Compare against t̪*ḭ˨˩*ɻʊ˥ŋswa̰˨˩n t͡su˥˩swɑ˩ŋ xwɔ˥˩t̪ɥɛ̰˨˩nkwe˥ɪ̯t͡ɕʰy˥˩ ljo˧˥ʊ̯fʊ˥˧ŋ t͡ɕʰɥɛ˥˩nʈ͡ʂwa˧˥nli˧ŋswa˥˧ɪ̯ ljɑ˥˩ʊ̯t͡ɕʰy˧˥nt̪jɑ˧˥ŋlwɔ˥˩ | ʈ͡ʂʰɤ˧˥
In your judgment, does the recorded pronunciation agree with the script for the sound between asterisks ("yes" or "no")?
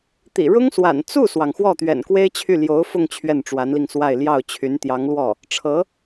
yes